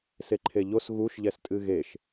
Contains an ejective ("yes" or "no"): yes